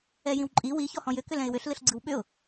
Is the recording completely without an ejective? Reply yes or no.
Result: no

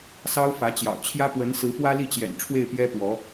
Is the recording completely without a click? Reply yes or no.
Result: yes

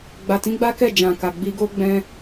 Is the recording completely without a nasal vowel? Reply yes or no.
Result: no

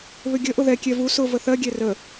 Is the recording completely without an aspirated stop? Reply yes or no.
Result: yes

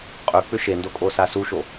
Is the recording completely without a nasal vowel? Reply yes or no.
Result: yes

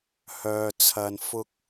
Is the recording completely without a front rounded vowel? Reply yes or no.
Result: no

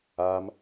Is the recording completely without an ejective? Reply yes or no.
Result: yes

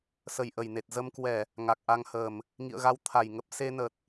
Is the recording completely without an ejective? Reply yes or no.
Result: yes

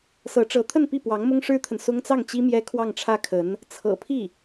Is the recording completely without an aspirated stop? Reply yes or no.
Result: no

